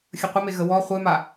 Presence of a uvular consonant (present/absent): present